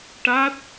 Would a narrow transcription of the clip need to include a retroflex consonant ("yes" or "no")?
yes